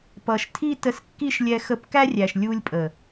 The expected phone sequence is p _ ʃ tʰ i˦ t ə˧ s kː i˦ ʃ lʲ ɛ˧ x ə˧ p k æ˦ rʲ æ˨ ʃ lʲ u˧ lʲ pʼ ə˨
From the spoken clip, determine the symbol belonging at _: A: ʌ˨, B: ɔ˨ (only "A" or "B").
A